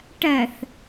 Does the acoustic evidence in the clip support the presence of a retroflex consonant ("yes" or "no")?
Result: yes